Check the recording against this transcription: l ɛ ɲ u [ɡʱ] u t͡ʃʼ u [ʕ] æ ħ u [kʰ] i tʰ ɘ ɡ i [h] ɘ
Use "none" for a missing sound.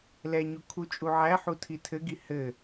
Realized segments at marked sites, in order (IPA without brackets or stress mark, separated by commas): kʰ, ʕ, tʰ, h